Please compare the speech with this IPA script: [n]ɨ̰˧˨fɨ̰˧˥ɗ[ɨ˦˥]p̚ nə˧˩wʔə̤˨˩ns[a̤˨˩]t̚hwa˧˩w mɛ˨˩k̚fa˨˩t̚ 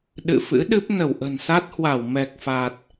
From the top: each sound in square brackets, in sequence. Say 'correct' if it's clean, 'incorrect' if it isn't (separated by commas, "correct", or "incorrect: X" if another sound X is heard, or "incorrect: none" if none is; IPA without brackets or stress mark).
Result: incorrect: ɗ, correct, incorrect: a˦˥